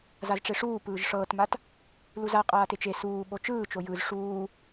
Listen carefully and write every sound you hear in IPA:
z a z ʈ͡ʂ e ʂ uː p ɯː ʒ ʂ ɤː t m a t | l u z a qʼ aː t e t͡ʃ e s uː ɓ o t͡ʃ ɯː t͡ʃ o j ɯ z ʂ uː

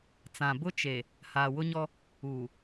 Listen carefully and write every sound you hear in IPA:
t͡s ã˨ b ʊ˦ t͡ʃ e˨ | h aː˨ w ʊ˦ ɲ ɔ˦ | uː˨

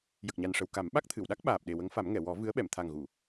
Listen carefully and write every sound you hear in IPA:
j ə˨˩ k̚ ɲ a˨˩ n ʂ ə˨˩ w k a˨˩˦ m ɓ a˦˥ k̚ t̪ʰ ɨ˨˩˨ w ɗ a˦˥ k̚ ɓ aː˨˩ p̚ ɗ e˨˩ w ə˧˥ ŋ f a˨˩˦ m ŋ ɛ˨˩˨ w ɔ˨˩˦ v ɨ˧˥ ə̯ ɓ ɛ˨˩˨ m t̪ʰ a˨˩ ŋ ɣ u˨˩˨

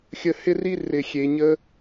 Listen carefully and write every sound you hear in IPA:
xʲ ə˨ h ɪ˦ r i˦ r ɪ˨ xʲ e˨ ɲ ə˦

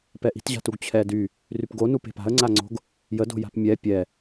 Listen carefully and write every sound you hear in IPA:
p ɛ ʔ i̤ t ʑ a̤ t u ɡ t͡ɕʰ ɛ d y | r y p ɡ o n u p e̤ p a̤ ə̯ ŋ͡ǀ a ŋ͡ǀ o̤ ɡ | j ə d o̤ j a̤ p mʲ ɛ pʲ ɛ

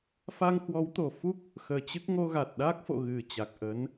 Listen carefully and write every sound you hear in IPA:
f a˧ ŋ h w ɔ˨˦ w t̪ o˨˩ f u˦˥ k̚ | x əː˧ t͡ɕ ɨ˦˥ k̚ ŋ o˧ ɣ a˨˩ t̚ ɗ aː˦˥ k̚ f o̰˧˨ ɣ ɨ˨˩ t͡ɕ a˨˩ k̚ ʔ ə˨˦ n

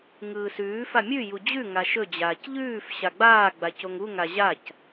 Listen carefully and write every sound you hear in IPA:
ŋ ɯː s ʉː f a mʲ ʉ j u d͡ʑ ʉ ŋ a ʃ ɵ d͡ʑ aː c ʎ ʉː f ɕ a ɡ͡b aː ɡ͡b a c o ŋ u ŋ a ʑ a c

